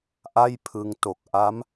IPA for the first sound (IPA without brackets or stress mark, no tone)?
ʔ